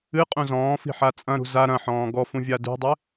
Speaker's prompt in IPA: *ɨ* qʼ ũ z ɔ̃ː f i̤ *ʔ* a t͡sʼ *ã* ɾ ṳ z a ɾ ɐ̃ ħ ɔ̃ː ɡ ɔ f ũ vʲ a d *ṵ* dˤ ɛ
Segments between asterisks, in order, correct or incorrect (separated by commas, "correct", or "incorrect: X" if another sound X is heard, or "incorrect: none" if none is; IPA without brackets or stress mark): correct, incorrect: ħ, incorrect: ɐ̃, incorrect: ṳ